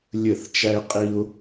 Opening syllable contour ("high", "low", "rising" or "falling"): falling